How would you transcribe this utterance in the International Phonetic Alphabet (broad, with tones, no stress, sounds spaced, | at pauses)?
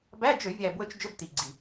b æ˧˥˧ d͡ʒ ø˧˩˧ vʲ æ˨˩ b w ɵ˧ t͡ʃ d͡ʒ ɵ˧˥˧ b t i˨˩ ɡ͡ǀ i˨˩